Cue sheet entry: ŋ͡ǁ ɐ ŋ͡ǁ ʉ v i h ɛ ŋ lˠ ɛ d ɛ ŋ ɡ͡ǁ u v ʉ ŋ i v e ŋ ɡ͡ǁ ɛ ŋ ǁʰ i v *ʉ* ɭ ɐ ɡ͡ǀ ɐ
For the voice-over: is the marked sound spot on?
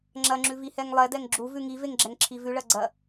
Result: yes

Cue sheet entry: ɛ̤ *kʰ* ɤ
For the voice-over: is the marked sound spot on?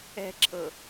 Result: no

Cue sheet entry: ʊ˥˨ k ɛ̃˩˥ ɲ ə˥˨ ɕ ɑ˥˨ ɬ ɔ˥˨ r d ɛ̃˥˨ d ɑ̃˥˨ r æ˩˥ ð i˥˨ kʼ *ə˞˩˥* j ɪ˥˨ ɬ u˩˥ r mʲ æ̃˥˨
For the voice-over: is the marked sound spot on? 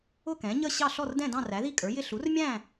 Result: yes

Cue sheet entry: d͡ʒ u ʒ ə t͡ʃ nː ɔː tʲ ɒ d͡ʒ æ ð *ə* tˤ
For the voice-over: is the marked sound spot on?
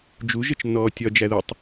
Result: yes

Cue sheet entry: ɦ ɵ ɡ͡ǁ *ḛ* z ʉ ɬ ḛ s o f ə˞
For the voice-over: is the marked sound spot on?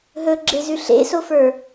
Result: no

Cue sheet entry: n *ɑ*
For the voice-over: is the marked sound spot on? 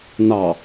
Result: yes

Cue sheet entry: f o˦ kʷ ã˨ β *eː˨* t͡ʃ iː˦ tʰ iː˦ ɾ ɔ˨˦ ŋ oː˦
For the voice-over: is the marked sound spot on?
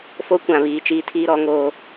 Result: no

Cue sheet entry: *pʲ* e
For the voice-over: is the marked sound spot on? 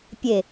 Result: yes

